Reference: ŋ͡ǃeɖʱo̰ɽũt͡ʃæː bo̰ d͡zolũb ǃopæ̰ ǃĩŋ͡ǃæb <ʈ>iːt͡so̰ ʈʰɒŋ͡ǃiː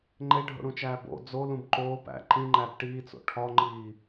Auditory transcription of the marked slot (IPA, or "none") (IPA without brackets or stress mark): ʈ